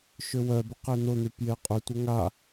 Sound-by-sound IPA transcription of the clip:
ʃ ʏ w œ b ʊ q e n̪ ʊ n̪ y p j e qʼ ʏ tʷ ə ŋ a

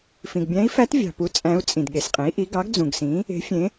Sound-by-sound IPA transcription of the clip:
f ĩ˩ ɡ bʲ æ̃˧˥ i̯ f æ˧˥ t vʲ ɑ̤˩ p u˩˥ t͡sʼ æ̃˧˥ u̯ t͡sʼ ĩ˩ d ɠ e˩ s qʼ ẽ˩˥ i̯ ʔ i˩˥ ɡ ɑ˩˥ ɡ d͡z ũ˩ ɡ s ĩ˩˥ | e̤˩˥ fʲ ẽ˩˥

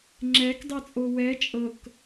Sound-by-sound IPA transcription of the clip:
ŋ͡ǁ ɛ k dˤ ɛ t͡sʼ o w ɛ t͡ʃʼ ɤ k

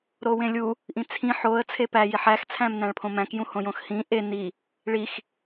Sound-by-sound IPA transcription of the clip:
ɾ o w ẽ lʲ u | ʔ ĩ t͡sʰ ĩ ħ o ə̯ t͡sʰ e p æ j i ħ æ x t͡sʰ æ̃ m n æ̃ ɭ pʰ õ m æ̃ k j ũ h õ j õ x h ĩ ʔ e n i | ɭ i x

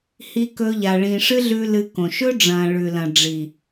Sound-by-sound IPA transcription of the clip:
h i˧ k ɵ˧ ʎ a˨ ɭ ĩː˨ ʂ ɨ˦ ɮ ʉ˧ l ɨ˧ k õ˨ ʃ ɵ˦ ɖ͡ʐ ɐ̃ː˨ ɭ ʉ˨ l ɐ̃˨ ɖ͡ʐ i˨

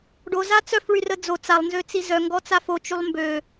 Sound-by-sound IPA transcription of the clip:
ɖ o z a t͡s œ f ɭ y r ə d͡z o t͡s a lˠ n z ø t͡s i z œ ŋ ɡ ɔ t͡s a f o t͡ʃ y lˠ m b ø

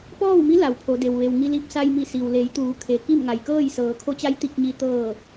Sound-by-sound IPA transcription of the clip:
p ɔː˥˨ w m i˧˥ l a˩˧ w pʰ o˩˧ d e˩ w ʋ e˩ w ŋ i˧ l i˧ p̚ s a˧ j m i˧˩ s i˩ w l e˩˧ j t̪ uː˩˧ kʰ e˩ k i˥˨ m ŋ a˩ j k ɤː˥˨ j s ɤː˩˧ kʰ o˧˥ t͡ɕ a˧˥ j t̪ i˧ k̚ ɲ i˧ t̪ ɤː˧˩

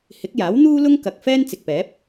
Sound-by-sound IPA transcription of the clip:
h ɪ˨˥ k̚ j aː˨˥ w n̪ uː˥ l ʊ˥ ŋ k ɐ˨ k̚ f ɛː˥ n t͡s ɪ˨ k̚ p ɛː˨˥ p̚

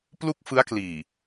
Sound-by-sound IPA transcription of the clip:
p l u˥˩ k̚ f ɯ˦˥ a̯ k l iː˨˩

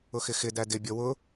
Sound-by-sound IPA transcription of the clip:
ʊ x ɪ x ɪ d æ d ɪ bʲ ɔ w ʊ

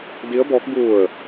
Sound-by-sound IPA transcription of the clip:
d i˧˥ ə̯ b ɔː˧˥ k̚ b u˧˩ ə̯

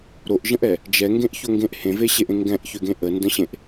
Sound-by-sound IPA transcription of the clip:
ɾ o ʔ ʒ ə̃ ʔ ɛ | d͡ʒ ɛ ŋ ɡ ẽ ʔ ç o ŋ ɡ ẽ ʔ h ẽ v e ɕ e ʔ ẽ ŋ ɡ ɛ̃ ʔ ç ø ɡ ẽ ʔ ə n d ə̃ ɕ ẽ ʔ

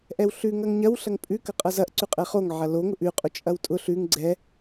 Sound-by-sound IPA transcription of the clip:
ʔ ɛ w ɬ ʉ ŋ ɐ ŋ ɲ ɐ w ɬ ɐ ŋ pʼ ʉ k ɐ qʼ ɐ z ɐ ʔ ǀ ʉ qʼ ɛ χ o ŋ ʕ ɐ l o ŋ ʊ ʔ ʉ qʼ o t͡ʃʼ ɐ w tʼ ʊ ɬ ʉ ŋ ɡ͡ǀ ɛ

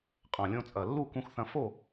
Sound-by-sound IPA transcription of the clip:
qʼ ɐ̃˨˩ lʲ õ˧ t͡sʼ ɐ˨˩ lː u˥˧ k ũ˧ x θ ɐ̃˧ f o˥˧

